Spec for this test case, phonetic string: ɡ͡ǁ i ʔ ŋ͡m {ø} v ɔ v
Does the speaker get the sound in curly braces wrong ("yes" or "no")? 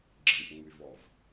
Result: yes